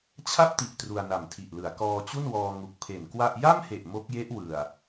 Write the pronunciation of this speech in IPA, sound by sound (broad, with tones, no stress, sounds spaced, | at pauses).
t͡ɕʰ a˥˩ p̚ t i˨˩ ʔ t r u˧ a̯ n a˨˩ m tʰ i˨˩ ʔ l ɯ˩˦ a̯ k ɔː˧ t͡ɕ u˥˩ n w ɔː˧ ŋ u˨˩ k̚ pʰ e˨˩ n k w a˥˩ ʔ j a˥˩ m h e˨˩ ʔ m o˦˥ k̚ j e˦˥ ʔ w ɯ˨˩ a̯